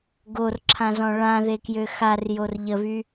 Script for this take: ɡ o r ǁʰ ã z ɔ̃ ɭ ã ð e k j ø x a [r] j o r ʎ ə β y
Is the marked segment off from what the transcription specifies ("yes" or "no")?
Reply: no